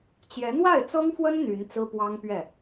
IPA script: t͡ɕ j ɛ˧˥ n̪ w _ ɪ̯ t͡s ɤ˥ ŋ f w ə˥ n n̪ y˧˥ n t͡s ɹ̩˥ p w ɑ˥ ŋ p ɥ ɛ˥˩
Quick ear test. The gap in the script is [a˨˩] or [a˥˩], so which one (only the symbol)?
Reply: a˥˩